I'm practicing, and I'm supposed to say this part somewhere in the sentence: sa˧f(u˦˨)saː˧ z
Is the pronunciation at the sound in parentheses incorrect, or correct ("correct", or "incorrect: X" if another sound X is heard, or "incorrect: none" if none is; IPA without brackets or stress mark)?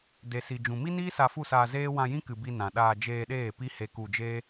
correct